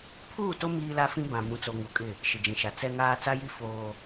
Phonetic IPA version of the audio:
pʰ uː˦˨ t o˦ m iː˦ l a˦ f ĩ˦ b ã˨ m ũ˨ t͡s o˨ ŋ u˨ kʼ ɪ˦˨ | ʃ ɪ˨ d͡ʒ ĩ˨ ʃ a˨ t͡s ɛ˦ ŋ aː˦ t͡s a˦ j i˦ f oː˦

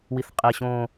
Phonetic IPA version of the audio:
w i θ qʼ e ɕ õ

